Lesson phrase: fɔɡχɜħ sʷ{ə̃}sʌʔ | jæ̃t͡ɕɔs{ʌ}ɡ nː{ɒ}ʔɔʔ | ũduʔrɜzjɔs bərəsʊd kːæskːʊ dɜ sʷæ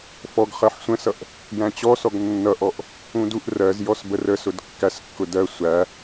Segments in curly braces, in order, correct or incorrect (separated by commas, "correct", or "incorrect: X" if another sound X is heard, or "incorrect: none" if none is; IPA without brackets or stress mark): correct, incorrect: ɔ, incorrect: ʌ